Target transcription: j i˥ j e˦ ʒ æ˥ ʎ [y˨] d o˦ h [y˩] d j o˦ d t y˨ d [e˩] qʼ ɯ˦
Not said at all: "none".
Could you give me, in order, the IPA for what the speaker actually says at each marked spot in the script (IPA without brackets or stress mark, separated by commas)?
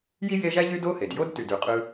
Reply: y˦, e˩, y˩